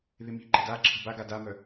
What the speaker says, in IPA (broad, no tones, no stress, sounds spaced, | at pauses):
ð ɪ m i̤ ǃ ə̤ d a ǁʰ ə̤ b a ɡ a d a m œ